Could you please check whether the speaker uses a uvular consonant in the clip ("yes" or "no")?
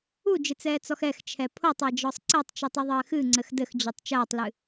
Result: no